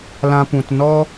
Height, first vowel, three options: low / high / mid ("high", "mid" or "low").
low